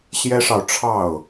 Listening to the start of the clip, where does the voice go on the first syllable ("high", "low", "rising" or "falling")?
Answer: high